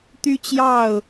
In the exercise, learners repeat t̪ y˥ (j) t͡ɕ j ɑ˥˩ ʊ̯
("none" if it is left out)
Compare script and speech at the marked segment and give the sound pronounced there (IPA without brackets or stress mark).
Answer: none